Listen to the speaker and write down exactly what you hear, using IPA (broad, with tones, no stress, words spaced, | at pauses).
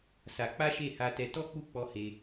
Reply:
sa˧ k͡pa˦ʃe˦˨ha˧tɛ˧ tɔ˦k͡pu˦˨k͡pɔ˧ he˧